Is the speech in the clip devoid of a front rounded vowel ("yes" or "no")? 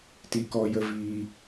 yes